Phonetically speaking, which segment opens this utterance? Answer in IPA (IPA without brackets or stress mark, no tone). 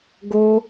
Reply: ɡ